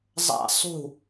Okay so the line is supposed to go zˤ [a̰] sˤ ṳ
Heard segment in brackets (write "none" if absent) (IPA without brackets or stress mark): a̰